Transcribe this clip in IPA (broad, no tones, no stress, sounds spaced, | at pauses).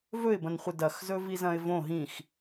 v ɵ ɪ̯ b ɐ̃ n χʷ ɨ d ɐ x z ɵ v i z ɐ̃ ɪ̯ v õ ɦ ĩ x